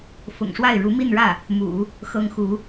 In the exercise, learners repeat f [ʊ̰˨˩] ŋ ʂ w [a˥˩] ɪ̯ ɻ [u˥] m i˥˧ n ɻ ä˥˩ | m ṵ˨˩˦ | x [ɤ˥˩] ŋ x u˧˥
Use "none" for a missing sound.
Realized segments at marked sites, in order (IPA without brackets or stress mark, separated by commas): ʊ̰˨˩, a˥˩, u˧˥, ɤ˥